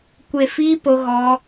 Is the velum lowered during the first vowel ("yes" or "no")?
no